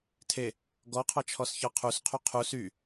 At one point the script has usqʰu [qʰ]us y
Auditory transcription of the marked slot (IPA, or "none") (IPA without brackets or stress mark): qʰ